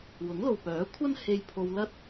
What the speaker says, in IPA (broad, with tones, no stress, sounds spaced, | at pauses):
w ʊ˨˥ ŋ l o˨ w p œː˨˥ kʷʰ ɐ˥ n h e˧ j pʰ o˧ w l ɐ˥ t̚